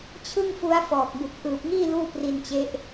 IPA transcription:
t͡ɕʰ ɯ˥˩ ŋ f u˦˥ a̯ f ɔː˨˩ k̚ b u˨˩ k̚ ʔ ɯː˨˩ p̚ ŋ iː˥˩ l uː˥˩ p r i˧ n t͡ɕ e˦˥ ʔ

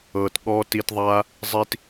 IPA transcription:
ɤː˨ t ɠ ɔː˧ t i˧ t ðˤ aː˦ | zˤ i˧ t

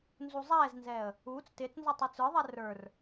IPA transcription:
n z u zˤ ɛː z n z ɛː ə̯ | uː t͡s t ɪː t͡s n z ɔ tˤ u t͡s ə˞ ðˤ ɛ r ə˞ r

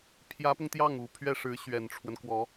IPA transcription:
pʰ j ä˧˥ p ʊ˧ ŋ t̪ j ɑ˥˩ ŋ u˨˩ pʰ ɥ ɛ˥˩ ʂ ɻ̩˧˥ ɕ ɥ ɛ˨˩ n ʈ͡ʂʰ w ə˦ n k w ɔ˧˥

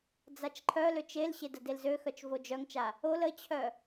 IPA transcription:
d͡z a t͡ʃ ǃʰ œ l ø t͡ʃ e l ɕ e d ə d e l z ø x œ t͡ʃ v o d͡ʒ œ ŋ t͡ʃ a | o l ə t͡ɕʰ œ

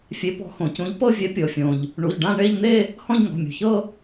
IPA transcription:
fʲ e˨˥ p ɔ̤˨˥ x õ˩ c ũ˨˥ ʎ p ɤ˥˧ vʲ ɛ˨˥ pʲ ɤ˩ fʲ õ˩ ʎ | ɳ u˩˧˩ ʎ ɖ ã˥˧ ɳ e˥˧ ʎ n̪ e˥˧ | h ɔ̃˥˧ ʎ ŋ ɔ̤˩˧˩ mʲ ṳ˩ ç ɤ˥˧

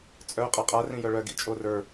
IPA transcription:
t͡sʼ œ qʼ a qʼ a r ĩ j œ ɭ œ ɡ ḭ t͡ʃʼ o r ə˞

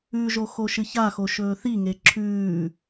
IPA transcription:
ʉ ʒ o x o ʃ ɨ ç a x o ʃ ɵː θ i ŋ e ǁʰ ʉː

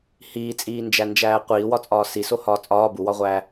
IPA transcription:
h iː t͡sʼ iː n d͡ʒ æ n d͡ʒ æː qʷ iː w ɒ t͡sʼ ɒː s i s o h ɒː t͡sʼ ɒː b u w ɒ ʁʷ æː

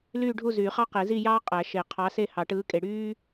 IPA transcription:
l yː˥˧ ɖʱ u˥˧ z yː˨˩˦ χ ɑ˥ q e˨˩˦ z i˥˧ j ɑː˥ qʼ æ˨˩˦ ʃ e˨˩˦ qʰ ɑ˨˥ s e˥˧ h ɑ˨˩˦ ʈ ɯː˨˥ kʼ e˨ ɽ yː˥

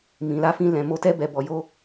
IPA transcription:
m ĩ˨ l a˧ f ĩ˧ l ɛ̃˨ m o˧ t ɛ˧ b ɛ˨ b ɔ˨ j o˧

